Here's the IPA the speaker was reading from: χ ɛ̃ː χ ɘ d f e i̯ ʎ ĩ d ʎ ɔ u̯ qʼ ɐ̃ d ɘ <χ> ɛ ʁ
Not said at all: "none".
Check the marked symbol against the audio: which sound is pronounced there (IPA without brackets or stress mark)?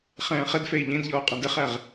χ